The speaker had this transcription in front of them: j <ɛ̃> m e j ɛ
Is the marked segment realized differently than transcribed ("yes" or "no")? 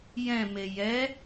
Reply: no